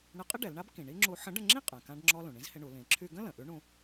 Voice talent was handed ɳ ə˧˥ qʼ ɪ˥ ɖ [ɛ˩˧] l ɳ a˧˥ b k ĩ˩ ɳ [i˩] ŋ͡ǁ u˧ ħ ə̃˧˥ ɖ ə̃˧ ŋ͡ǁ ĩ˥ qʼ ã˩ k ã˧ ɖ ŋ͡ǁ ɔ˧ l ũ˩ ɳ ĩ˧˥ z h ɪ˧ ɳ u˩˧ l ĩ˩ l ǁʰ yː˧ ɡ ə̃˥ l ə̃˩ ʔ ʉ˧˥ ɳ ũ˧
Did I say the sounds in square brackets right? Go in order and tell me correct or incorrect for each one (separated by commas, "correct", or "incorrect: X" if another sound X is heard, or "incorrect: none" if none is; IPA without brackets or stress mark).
correct, incorrect: i˥